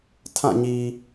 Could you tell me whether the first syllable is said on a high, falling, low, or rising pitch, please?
falling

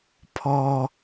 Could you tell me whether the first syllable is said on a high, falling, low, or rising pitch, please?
low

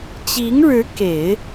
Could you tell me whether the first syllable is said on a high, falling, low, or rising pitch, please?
rising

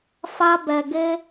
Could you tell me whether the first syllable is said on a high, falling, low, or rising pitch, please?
high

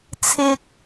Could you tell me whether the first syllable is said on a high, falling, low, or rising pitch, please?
high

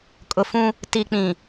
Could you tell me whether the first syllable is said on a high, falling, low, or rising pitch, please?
low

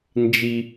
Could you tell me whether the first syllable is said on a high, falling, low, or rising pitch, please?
low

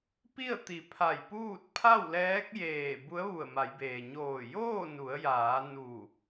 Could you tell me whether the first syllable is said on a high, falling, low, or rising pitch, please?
falling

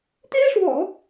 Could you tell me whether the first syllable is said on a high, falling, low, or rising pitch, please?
high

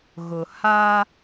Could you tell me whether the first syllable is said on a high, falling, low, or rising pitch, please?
low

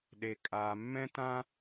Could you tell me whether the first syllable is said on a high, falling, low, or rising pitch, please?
low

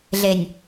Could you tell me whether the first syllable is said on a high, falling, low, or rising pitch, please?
low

